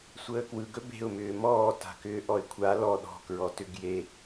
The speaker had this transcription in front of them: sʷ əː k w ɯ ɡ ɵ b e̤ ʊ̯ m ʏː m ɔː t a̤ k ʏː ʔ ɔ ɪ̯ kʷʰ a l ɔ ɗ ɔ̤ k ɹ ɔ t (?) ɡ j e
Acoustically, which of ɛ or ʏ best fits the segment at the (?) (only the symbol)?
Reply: ʏ